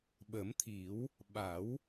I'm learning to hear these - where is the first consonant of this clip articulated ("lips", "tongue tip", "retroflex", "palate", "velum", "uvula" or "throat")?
lips